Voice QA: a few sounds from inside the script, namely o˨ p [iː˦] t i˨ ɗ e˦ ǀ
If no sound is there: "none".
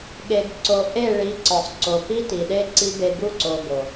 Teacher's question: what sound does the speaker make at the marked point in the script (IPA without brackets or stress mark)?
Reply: i˦